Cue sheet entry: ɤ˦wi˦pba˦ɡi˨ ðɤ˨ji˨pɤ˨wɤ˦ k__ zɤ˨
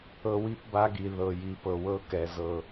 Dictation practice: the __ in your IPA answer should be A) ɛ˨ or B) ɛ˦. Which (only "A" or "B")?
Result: A